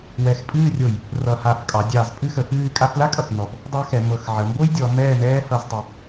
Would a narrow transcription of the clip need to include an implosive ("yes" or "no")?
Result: no